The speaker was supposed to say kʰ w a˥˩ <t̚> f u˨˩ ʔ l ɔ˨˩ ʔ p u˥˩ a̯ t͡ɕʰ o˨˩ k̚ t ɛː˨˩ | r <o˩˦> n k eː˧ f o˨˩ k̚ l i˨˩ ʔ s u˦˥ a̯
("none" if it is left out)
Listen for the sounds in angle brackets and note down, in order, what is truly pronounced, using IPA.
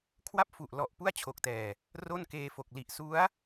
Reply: p̚, o˥˩

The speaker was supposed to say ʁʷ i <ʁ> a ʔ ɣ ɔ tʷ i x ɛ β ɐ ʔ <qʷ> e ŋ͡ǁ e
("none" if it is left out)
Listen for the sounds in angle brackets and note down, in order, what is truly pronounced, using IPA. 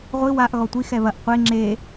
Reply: w, qʷ

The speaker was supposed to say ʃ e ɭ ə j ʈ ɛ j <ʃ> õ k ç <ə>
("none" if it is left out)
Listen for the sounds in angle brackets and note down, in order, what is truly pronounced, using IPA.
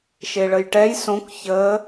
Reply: s, ə

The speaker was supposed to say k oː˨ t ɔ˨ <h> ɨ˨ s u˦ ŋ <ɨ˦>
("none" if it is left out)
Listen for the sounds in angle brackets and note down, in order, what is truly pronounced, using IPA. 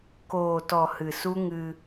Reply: h, ɨ˧

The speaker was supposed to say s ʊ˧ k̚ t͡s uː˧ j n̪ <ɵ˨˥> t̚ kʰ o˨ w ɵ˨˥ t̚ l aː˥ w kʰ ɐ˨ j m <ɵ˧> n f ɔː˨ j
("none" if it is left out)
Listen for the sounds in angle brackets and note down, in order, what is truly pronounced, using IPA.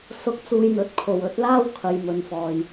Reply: ɵ˨˥, ɵ˨

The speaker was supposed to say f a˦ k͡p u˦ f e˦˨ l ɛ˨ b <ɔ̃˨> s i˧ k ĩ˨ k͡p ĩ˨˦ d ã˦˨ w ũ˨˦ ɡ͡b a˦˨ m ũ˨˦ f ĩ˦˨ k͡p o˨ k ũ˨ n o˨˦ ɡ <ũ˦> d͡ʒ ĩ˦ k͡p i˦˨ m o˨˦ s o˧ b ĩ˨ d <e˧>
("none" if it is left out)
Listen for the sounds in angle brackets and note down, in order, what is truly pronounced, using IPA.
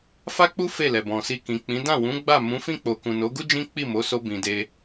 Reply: ɔ̃˨, u˦, e˧

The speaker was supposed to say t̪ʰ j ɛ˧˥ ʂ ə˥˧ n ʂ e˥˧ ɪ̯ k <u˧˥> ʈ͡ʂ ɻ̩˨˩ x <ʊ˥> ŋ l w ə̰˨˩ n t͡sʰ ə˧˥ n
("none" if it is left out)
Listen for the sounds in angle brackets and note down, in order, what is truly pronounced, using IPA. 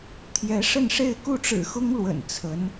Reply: u˥˩, ʊ˥

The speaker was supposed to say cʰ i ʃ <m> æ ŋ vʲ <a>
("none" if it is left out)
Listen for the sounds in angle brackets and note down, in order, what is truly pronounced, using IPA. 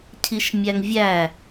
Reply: mʲ, æ

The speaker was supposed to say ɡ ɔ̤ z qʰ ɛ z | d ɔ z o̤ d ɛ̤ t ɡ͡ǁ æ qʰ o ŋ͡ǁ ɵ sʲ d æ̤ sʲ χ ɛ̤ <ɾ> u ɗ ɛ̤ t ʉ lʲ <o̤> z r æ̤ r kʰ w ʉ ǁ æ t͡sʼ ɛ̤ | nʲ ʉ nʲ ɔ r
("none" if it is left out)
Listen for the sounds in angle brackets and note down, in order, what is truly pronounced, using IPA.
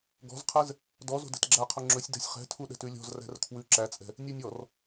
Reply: tʰ, ɔ̤

